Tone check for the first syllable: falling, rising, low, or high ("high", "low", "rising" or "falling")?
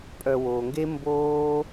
low